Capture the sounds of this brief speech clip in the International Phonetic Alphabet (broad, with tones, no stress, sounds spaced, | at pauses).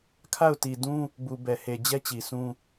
kʰ a˦˨ ʊ̯ t i˨ d ũ˦ | b u˨ b ɛ˨ h e˨ d͡ʑ ɛ˦ t͡ɕ i˨ sʰ ũ˦